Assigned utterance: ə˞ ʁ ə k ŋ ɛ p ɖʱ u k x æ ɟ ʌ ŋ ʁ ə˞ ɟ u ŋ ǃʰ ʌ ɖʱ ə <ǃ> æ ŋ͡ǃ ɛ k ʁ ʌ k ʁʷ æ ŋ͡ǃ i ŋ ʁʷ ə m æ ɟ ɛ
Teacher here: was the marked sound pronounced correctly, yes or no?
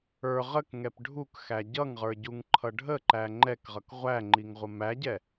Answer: yes